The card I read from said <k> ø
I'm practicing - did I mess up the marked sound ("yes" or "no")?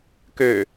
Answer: no